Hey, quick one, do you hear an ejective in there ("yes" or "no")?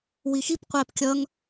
no